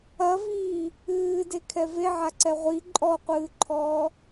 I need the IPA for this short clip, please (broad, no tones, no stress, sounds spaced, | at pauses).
ɐ v iː | ɨː d e kʰ ɛ v e ʕ a ǀ ɛ ʁʷ i ǃʼ ɔ qʷ ɨː ǃʰ ɔː